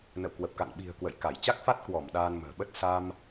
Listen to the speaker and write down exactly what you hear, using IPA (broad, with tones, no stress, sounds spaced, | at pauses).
n ə̰˧˨ w k w ə˨˩ p̚ k a̰˧˨ n ɓ i̤˨˩ ə̯ k w ə̰˧˨ j k a˧˩ j t͡ɕ a˦˥ k̚ f a˦˥ t̚ k w ɔ˧˩ m ɗ aː˧ n m ə̤ː˨˩ ɓ ə˦˥ t̚ s a˧ m